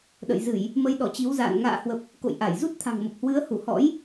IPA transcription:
ɗə̰˧˨jzɨ˧˩˨j | mə˨˦jɗɔ˧˩t͡ɕi˨˦wza̰ː˧˨n ŋa̰ː˧˨hwə˨˩p̚ | ko̰˧˨jʔa˧˩jzu˦˥t̚ t̪ʰa̤˨˩ŋmə˨˩p̚hwɨ˨˦ə̯hu˧˩ hɔ̰˧˥j

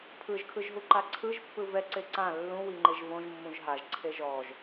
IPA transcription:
pʰɯʒkʰɯʒɦuǃa ǀʰɯʒpːɯ vɛǀe ǀã lːũwiŋ͡ǃeʒ võʒmːũʒ ɦaʒǀʰe ʒɔʒ

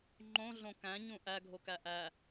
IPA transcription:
ŋ͡ǃõɮõ kæ̃ɲũ ʔæɡʱokæ ʔæ

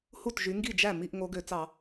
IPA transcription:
hu˥˩tʒy˨˦ ŋɡi˥˩d͡ʒæ˥˩ mi˥˧ʔ ŋo˨˦ɡø˧˩˧t͡sɑ˧˩˧

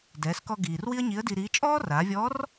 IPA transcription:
dɛː˩˧skɔ˧ ɡiː˩r wi˥ə̯ɲi˧˥ə̯di˧ɾiː˧˥ t͡ʃʼɔː˥raː˩˧vʲɔ˧˥r

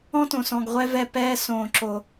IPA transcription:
ɔ̃˦tõ˨sɔ̃˨ɡ ʁʷɛ˧vɛ˧pɛː˧sõː˨ ǁo˨

